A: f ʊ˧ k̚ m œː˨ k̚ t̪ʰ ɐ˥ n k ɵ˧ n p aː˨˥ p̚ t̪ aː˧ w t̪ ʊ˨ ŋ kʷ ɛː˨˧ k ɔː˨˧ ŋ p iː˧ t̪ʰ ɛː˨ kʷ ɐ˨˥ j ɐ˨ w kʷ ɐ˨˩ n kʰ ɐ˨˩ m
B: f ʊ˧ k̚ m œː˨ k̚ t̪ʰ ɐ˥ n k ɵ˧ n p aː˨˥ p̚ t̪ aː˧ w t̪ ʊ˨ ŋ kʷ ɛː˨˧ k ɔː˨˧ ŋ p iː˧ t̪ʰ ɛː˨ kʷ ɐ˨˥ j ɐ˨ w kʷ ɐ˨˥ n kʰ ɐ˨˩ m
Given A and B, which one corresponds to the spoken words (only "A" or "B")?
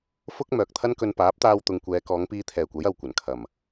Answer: A